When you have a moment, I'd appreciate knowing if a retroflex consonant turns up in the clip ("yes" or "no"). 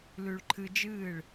yes